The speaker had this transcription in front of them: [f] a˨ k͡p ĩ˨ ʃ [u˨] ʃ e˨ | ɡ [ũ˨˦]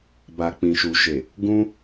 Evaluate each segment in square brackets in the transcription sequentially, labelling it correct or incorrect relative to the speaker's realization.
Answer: incorrect, correct, incorrect

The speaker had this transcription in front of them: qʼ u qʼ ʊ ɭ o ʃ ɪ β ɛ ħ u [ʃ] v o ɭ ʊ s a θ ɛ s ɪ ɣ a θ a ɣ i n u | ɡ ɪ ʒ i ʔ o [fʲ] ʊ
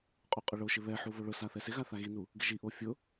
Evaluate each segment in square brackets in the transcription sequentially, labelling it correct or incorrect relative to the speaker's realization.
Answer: incorrect, correct

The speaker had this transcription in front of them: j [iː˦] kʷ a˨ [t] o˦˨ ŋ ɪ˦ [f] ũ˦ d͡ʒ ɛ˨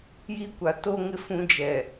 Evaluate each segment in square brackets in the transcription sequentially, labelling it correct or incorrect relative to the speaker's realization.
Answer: incorrect, correct, correct

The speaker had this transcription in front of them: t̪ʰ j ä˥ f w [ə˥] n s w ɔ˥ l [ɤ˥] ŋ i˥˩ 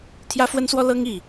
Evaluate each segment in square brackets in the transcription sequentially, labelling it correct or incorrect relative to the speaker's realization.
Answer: correct, correct

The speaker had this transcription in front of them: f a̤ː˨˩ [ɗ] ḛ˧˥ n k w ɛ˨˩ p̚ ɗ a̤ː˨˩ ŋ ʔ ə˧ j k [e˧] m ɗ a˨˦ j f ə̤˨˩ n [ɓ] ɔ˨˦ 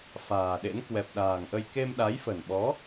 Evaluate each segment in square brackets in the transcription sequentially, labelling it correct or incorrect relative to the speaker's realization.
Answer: correct, correct, correct

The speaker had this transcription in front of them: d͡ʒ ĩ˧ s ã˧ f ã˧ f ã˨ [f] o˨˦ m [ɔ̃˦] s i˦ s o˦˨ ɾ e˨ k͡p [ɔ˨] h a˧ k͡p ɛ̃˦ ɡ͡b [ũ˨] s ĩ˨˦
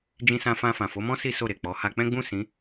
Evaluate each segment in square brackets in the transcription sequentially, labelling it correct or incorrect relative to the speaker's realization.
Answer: correct, correct, incorrect, incorrect

